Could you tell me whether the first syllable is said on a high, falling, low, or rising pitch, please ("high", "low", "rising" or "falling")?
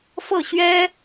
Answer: falling